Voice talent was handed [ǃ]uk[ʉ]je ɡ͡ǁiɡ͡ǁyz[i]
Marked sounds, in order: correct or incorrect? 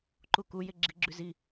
correct, incorrect: u, correct

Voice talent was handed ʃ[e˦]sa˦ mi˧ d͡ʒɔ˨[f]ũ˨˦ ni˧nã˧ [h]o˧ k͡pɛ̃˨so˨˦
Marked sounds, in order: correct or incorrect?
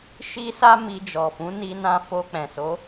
incorrect: i˦, correct, incorrect: f

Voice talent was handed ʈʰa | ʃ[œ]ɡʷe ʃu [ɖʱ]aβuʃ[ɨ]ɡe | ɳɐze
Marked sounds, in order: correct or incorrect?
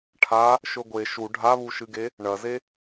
incorrect: ɵ, correct, correct

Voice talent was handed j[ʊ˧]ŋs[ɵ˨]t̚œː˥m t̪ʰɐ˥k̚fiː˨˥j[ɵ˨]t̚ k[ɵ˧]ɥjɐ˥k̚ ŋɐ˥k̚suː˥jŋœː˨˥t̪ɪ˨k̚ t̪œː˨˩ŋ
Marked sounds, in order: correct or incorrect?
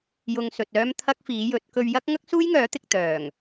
correct, correct, incorrect: ɵ˨˥, correct

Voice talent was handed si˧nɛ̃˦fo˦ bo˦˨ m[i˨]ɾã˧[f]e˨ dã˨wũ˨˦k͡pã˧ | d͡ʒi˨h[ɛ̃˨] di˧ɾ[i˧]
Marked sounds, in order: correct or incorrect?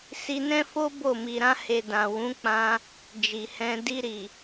correct, incorrect: h, incorrect: ɛ̃˧, incorrect: i˨

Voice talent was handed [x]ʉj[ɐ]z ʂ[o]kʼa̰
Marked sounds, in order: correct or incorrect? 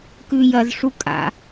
incorrect: k, correct, incorrect: u

